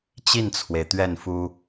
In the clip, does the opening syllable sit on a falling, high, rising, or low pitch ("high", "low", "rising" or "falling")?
falling